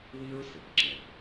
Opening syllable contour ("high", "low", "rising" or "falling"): high